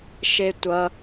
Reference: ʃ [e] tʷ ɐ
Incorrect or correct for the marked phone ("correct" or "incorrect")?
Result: correct